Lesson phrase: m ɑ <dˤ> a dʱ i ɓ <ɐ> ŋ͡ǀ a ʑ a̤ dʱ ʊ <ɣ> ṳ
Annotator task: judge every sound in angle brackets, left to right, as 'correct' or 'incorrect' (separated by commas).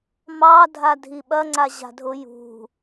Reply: incorrect, correct, incorrect